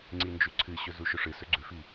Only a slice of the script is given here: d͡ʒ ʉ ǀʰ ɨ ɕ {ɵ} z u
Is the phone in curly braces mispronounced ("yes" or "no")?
no